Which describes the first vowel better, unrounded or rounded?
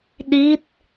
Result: unrounded